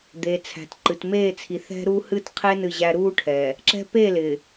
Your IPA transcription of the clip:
d̪e˨t͡sʰæ̤˨t ǃɨ˨t meː˦˨t͡sʰi˨ θɛ̤˦ɾuː˦ hɨ˦tqʰe˦ nɨ˦˨ʑæ˦ ɾuː˦ʈʰɛː˨ | ǁɛ̤˦ pe˦˨lɪː˨

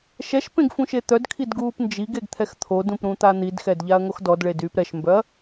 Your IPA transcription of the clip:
ʃɛʃ pẽɡfũʃet̪œd kʰidɡuːpnd͡ʒiɡeɡ t̪ʰɛxt̪ʰodũpɾũ t̪an̪idxɛd ʎaɐ̯ŋoxdɔd ɭedyːpɾɛʃmbœɐ̯

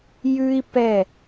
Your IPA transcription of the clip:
jʉ˦i̯ pɛ˦˨

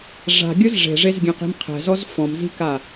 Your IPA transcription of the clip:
ʐa̤ɡʲʊz ʐe̤ʐezɡʲɛ̃qi̤m qʰɛ̤zɔz fɔ̃mzi̤ka

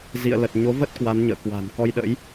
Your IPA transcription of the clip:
zḭ˧˨ə̯lə˨˩t̚ ɲo˨˦və˦˥t̚ kwa˨˦nɲə̰ː˧˨kwa̤˨˩n kɔ˧jɗə̰˧˥j

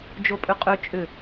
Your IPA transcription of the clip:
d͡ʒopʼʏqʼø t͡ʃʼʏ

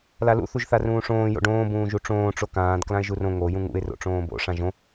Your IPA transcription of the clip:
lalṵ θuʒθarũːʂõː jo̰ɖõː bũːʒuʈ͡ʂõː ʈ͡ʂokãːd klãɪ̯ʒurõ ŋo jũŋṵɪ̯ ro̰ʈ͡ʂõːbo̰ ʂãʒõ

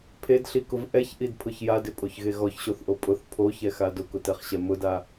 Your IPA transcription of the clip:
pʰedɬikʊv ʔɛçʔidpʰʊç jadɪpʼoçɣe ɣɔçɕoθʔo pʼʊθ pʰoçɛxa dʊkʊtɛχɕɛ mʊda

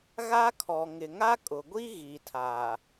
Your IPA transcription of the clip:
ɣa˦kʰɔ˨ ŋɪ˨ŋa˦kʼʊ˨ɡʷi˦ ɣi˨tʰaː˨

